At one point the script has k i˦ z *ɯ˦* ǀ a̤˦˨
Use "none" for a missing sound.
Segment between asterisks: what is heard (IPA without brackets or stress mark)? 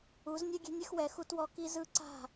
ɯ˦